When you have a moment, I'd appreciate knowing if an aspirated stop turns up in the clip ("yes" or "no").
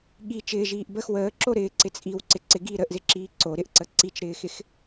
no